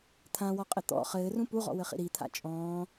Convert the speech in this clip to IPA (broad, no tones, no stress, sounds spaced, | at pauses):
t̪ʰ ã w ɔ qʼ ɘ t̪ ɔ̰ χ ɘː r ũ p u ʁ ɔ̰ w ɘ χ ḭ ɾ i t̪ʰ a̰ t͡ʃʼ ɔ̃ː